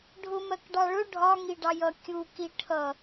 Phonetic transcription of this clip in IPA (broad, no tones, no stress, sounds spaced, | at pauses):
ɖʱ ʊ m ɜ k ɖ ɑ ɭ ʊ ɖʱ ɒ ŋ i ɖ ɑ j ʌ kʲ u k i ʈʰ ʌ